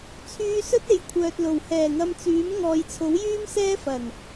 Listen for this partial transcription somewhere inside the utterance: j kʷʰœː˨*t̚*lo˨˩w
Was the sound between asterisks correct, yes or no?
yes